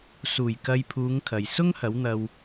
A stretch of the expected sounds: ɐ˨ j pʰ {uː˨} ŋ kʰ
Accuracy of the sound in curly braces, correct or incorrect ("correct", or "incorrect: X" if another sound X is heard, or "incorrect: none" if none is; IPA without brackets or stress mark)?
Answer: incorrect: uː˨˧